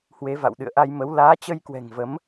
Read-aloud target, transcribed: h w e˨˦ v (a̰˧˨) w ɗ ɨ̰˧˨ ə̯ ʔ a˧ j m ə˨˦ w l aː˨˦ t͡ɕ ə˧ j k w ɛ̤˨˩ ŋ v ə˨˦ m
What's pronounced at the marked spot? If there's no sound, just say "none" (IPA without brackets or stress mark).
a̰˧˨